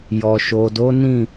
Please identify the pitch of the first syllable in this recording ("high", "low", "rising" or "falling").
low